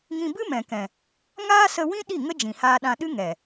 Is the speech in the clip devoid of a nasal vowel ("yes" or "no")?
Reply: no